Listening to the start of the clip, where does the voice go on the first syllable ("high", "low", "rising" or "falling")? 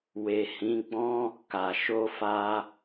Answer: low